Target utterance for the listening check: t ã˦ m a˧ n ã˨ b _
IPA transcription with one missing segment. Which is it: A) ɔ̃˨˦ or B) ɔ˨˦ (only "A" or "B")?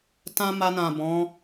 A